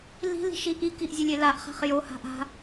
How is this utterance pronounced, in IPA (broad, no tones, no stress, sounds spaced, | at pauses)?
l i̤ l i̤ ʃ i ʔ i k i ʔ zʲ e lʲ e l a ʔ χ a̤ χ j o h a̤ ʔ a̤